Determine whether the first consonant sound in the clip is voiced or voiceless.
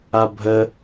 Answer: voiced